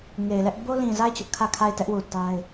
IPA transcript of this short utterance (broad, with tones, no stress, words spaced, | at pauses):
ŋe˨ɪ̯lɛ˦ʔ bo˦lĩ˨za˦˨ɪ̯ t͡ɕʊ˦ʔkʰä˦˨kʰa˦˨ɪ̯tɛ˦ʔ wu˨ta˦ɪ̯